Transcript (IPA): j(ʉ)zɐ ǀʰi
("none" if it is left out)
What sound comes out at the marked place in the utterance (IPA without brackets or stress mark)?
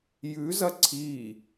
ʉ